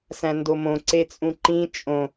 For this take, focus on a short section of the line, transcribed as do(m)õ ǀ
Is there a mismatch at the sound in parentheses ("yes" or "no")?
no